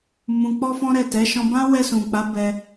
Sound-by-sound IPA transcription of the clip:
m ũ˧ k͡p ɔ˦ f ɔ̃˦ ɾ ɛ˦˨ t ɛ˨˦ ʃ ɔ̃˧ b ã˦ w ɛ˧ s ũ˨ k͡p a˨˦ b ɛ˧

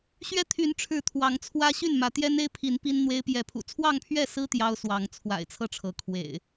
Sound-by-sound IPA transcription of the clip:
ɕ ɥ ɛ˦ t̪ʰ y˨˦ n ʈ͡ʂʰ ɻ̩˨˦ t̪ʰ w ɑ˨˦ ŋ t͡sʰ w ä˦ ɕ y˥˨ n m ä˨˦ t̪ j ɛ˦ n e˦ ɪ̯ pʰ i˨˦ n p i˦ n n̪ w e˦ ɪ̯ p j ɛ˨˦ pʰ ṵ˨˩ t͡sʰ w ɑ˥˨ ŋ pʰ ɥ ɛ˥˨ s ɹ̩˦ t̪ j ɑ˦ ʊ̯ s w ɑ˨˦ ŋ t͡sʰ w a̰˨˩ ɪ̯ t͡sʰ ɤ˥˨ ʈ͡ʂʰ ɤ˨˦ kʰ w ḛ˨˩ ɪ̯

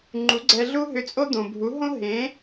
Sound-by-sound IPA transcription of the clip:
ŋ͡ǃ u˩˥ ɡ͡ǀ ɛ˧ ɮ u˥ ɦ ʏ˧ t͡sʼ o˥ d̪ õ˩ bʱ u˩˥ ɦ õ˥ ɦ ẽ˩˥

